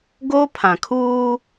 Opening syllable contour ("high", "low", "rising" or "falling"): high